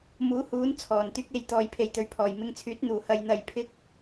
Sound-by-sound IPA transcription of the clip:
m uː˨˥ h uː˨˥ n t͡sʰ ɔː˨˩ n t̪ yː˥ k̚ e˨˧ j t̪ ɔː˨ j pʰ e˨ j t̪ ɵ˨ ɥ pʰ ɔː˨˩ j m ɪ˧ ŋ t͡sʰ yː˨˥ t̚ n̪ uː˨˩ h ɐ˧ j n̪ ɐ˧ j pʰ ɪ˥ k̚

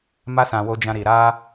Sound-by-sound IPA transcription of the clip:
m a˧ s ã˨ w o˧ d͡ʒ ã˧ ɾ i˨ ɾ a˧

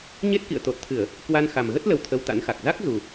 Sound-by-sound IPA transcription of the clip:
ɲ e˦˥ t̚ k ḭ˧˨ ə̯ t̪ o˨˩ t̚ t̪ʰ ɨ˧˩˨ ə̯ | k w a˧ n x a˨˩ m ɣ ə˦˥ t̚ l ə˧ w t̪ʰ ə˧ w t̪ a̰˧˥ n x a˨˩ k̚ z a˦˥ k̚ z u˨˩

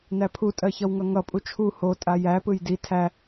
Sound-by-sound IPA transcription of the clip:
n æ pʰ u tʼ ɜ ç ʌ w ŋ ʌ ŋ ʌ pʼ u t͡ʃʰ u h o tʼ a j æ p ɯ j d i tʰ æ

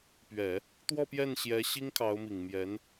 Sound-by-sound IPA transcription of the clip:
p ɥ ɛ˨˩˦ | t̪ w ɔ˥˧ p j ɛ˥˩ n ɕ j ɛ˧˥ ɕ i˥ ŋ kʰ ɑ˧˥ ʊ̯ m i˨˩ ŋ m j ɛ˧˥ n

